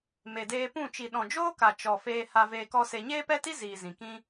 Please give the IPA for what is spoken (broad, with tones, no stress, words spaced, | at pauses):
me˨deː˧pũ˦˨ t͡ʃi˨ɗɔ̃˨d͡ʒoː˦ka˨ t͡ʃɔ˨ feː˧ha˧ veː˧kɔ˦se˧ ɲeː˦pɛ˦ti˦ ziː˨ zĩ˨kĩ˦